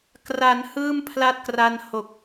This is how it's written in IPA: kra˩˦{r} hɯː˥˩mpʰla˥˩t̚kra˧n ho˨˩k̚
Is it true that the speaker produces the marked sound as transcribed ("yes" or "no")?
no